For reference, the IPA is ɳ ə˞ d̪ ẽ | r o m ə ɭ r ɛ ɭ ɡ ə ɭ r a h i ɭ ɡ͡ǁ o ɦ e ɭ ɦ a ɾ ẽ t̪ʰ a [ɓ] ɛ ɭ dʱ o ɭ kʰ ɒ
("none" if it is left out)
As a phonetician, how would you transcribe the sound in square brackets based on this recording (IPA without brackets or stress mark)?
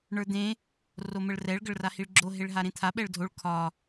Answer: ɓ